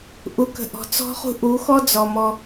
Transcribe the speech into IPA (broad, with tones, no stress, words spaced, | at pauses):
ʔu˨kə̤˨ ʔɔ̤˨t͡sɔ̤˦χṳ˦ ʔu˨˦xɔ˦d͡zɔ˨ mɔ˦